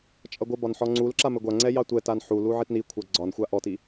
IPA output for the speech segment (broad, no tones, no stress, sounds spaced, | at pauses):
t͡ʃʼ ʌ ɡʷ ɘ b ɒ n ħ ɔ ŋ͡ǀ u l ǁ a m ɘ ɡʷ a ŋ͡ǀ ɛ j ɑ tʷ ɛ t a n ħ u l u ʕ i t n i kʷʰ a ɡ͡ǀ ɒ n xʷ a ʔ ɔ t i